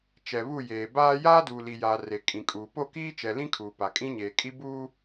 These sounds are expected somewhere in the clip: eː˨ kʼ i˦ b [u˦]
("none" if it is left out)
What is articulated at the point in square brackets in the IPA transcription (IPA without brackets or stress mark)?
u˦